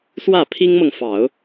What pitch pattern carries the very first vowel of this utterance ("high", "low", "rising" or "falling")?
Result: falling